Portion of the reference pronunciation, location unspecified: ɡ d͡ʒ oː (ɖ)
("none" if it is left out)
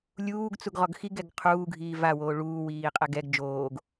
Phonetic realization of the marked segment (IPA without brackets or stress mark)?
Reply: ɡ